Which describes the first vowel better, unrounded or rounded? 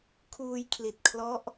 rounded